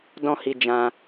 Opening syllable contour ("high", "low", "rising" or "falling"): high